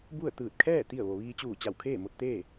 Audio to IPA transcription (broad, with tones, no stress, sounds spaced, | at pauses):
b u˥˨ ə̯ t̪ ɯː˧˩ t̚ kʰ ɛː˥˨ t̪ i˥˨ ə̯ ʋ o˩ ʋ iː˧ t͡ɕ uː˧˩ t͡ɕ a˧˩ w kʰ eː˥˨ m o˧ t̚ t̪ eː˥˨